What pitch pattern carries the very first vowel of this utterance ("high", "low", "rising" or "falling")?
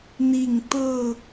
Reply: falling